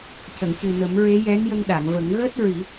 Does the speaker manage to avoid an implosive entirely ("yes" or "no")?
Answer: no